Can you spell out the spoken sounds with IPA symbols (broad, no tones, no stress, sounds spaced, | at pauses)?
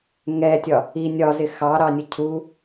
ŋ ɛ tʲ ɒ | i nʲ ɒ z ɪ x ɑ ɾ ɑ nʲ ʌ cʰ u